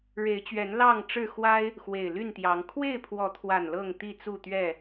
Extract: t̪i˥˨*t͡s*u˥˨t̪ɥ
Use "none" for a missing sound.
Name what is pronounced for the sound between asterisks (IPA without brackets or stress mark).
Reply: t͡s